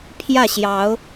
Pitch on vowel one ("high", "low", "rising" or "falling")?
falling